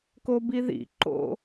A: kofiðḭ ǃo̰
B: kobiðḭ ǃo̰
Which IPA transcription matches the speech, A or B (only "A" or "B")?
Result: B